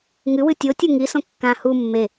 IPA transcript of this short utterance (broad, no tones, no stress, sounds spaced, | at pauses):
ŋ ɨ w ɨ tʲ o tʲ u ŋ i s õ kː ã h u mː e